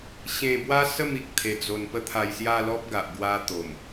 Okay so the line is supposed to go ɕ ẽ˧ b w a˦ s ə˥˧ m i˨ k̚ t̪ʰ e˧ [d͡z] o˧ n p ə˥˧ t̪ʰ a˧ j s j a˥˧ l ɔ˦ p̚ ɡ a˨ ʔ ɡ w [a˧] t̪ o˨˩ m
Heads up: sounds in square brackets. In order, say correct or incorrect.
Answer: correct, correct

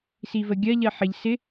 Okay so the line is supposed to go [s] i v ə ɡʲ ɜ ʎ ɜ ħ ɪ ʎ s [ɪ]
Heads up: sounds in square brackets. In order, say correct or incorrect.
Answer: correct, correct

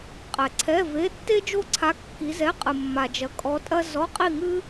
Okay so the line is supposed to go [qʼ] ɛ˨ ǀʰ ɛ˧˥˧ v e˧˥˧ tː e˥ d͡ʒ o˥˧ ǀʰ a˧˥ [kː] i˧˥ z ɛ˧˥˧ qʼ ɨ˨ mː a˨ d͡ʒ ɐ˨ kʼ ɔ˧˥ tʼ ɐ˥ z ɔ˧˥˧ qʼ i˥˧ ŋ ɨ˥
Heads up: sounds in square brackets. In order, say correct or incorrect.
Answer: correct, correct

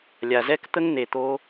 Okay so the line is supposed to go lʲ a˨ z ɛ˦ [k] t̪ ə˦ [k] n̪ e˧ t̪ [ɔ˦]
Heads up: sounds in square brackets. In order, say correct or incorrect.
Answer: correct, incorrect, incorrect

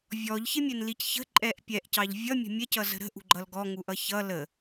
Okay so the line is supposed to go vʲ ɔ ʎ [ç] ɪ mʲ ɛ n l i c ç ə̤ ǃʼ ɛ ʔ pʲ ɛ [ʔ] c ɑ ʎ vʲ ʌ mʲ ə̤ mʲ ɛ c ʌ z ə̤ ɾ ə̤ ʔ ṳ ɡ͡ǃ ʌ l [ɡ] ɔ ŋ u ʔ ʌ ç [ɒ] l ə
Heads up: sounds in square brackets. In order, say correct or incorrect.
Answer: correct, correct, correct, incorrect

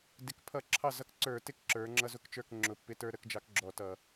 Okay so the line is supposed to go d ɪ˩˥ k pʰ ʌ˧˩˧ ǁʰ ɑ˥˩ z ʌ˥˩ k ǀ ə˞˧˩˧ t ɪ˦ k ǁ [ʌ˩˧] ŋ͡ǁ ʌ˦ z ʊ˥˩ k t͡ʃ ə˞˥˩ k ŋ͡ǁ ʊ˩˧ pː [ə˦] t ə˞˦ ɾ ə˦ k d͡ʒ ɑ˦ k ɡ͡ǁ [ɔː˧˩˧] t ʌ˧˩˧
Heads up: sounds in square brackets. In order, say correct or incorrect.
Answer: incorrect, incorrect, incorrect

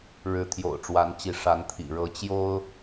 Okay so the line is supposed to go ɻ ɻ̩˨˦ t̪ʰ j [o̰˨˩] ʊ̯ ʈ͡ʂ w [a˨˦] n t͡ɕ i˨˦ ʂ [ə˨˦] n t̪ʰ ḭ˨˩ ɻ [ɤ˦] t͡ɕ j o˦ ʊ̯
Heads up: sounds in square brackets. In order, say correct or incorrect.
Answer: correct, correct, incorrect, incorrect

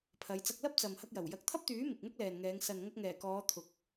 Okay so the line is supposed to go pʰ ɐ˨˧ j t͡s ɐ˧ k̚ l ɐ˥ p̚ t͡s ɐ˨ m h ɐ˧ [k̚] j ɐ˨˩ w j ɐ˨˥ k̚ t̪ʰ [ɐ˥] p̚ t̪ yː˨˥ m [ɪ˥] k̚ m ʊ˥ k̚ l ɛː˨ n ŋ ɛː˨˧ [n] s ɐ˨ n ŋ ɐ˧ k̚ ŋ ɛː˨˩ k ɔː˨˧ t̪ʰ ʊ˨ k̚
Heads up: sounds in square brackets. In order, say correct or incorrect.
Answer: correct, correct, incorrect, incorrect

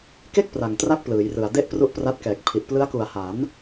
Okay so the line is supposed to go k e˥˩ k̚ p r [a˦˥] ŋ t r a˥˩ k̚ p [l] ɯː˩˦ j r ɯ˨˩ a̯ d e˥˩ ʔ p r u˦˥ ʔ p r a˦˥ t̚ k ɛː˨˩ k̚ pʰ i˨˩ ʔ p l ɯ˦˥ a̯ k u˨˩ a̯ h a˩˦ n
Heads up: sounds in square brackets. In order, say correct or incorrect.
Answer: incorrect, correct

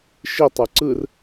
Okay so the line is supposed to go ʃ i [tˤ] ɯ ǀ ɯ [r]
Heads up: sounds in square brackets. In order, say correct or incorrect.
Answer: correct, correct

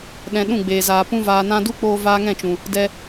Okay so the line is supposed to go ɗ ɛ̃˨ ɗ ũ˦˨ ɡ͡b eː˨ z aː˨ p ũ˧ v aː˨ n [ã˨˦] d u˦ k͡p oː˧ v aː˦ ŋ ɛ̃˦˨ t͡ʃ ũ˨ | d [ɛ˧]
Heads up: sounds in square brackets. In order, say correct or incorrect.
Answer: incorrect, correct

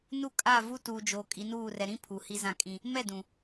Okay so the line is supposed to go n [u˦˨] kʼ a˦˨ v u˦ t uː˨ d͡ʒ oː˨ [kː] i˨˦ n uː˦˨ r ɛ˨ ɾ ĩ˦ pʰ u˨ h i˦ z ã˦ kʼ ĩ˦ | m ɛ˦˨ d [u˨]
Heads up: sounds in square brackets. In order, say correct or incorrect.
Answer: correct, incorrect, incorrect

